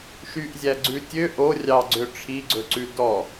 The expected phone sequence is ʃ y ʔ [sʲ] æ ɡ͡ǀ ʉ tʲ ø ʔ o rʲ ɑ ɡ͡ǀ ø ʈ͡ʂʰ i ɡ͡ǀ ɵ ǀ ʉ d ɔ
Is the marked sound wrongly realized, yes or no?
yes